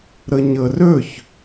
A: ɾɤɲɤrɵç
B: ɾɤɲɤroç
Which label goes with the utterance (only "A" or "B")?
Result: A